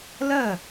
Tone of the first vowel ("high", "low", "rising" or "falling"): falling